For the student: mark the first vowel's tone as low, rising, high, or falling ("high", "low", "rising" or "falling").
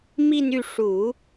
falling